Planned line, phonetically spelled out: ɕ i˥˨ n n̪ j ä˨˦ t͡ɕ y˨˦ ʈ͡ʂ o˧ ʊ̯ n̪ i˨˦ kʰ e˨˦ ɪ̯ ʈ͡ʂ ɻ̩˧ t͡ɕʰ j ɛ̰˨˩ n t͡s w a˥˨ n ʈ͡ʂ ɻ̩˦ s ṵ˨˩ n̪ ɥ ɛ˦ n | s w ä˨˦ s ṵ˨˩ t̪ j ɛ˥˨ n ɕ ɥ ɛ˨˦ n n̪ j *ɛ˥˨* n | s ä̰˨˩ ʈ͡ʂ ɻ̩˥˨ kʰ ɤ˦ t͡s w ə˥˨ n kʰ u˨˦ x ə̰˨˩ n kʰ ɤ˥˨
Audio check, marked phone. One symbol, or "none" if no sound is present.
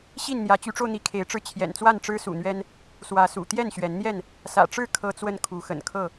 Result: ɛ˥˨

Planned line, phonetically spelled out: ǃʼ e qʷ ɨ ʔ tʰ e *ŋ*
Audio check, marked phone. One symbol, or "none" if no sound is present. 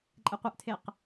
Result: q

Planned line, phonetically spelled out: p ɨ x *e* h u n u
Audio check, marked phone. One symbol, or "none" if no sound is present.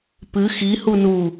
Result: i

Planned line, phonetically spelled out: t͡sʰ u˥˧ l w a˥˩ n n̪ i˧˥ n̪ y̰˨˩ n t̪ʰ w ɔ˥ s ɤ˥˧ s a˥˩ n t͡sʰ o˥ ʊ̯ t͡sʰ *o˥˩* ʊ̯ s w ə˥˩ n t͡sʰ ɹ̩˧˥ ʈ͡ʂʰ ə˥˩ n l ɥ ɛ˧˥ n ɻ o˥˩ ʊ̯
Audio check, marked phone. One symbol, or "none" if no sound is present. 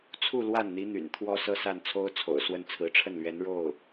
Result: o̰˨˩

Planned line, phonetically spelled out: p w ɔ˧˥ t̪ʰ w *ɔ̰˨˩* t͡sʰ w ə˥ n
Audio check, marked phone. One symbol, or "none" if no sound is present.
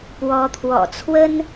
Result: ɔ̰˨˩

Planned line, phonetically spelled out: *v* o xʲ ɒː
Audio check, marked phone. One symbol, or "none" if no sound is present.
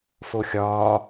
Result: f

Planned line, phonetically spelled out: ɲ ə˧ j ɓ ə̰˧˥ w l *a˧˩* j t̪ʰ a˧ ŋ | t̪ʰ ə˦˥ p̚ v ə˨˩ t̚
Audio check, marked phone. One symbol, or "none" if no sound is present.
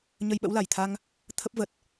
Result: a˧˩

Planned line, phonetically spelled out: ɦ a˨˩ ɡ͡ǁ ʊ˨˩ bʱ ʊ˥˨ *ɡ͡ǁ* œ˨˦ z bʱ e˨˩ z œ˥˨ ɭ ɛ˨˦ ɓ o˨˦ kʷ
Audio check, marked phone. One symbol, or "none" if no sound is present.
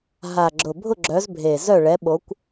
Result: ɡ͡ǁ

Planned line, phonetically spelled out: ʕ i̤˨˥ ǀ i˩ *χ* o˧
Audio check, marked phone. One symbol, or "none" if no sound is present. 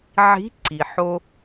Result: ħ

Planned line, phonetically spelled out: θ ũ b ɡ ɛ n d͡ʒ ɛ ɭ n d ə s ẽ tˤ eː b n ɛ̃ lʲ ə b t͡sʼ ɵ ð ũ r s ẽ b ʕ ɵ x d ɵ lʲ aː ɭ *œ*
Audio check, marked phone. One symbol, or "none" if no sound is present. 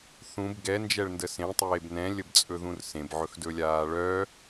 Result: œ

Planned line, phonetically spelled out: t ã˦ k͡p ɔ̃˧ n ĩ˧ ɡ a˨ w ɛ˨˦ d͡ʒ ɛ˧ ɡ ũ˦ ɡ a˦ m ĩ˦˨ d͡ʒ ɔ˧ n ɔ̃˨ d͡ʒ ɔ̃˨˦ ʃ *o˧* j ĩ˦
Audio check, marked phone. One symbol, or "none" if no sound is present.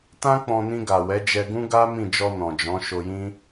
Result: o˧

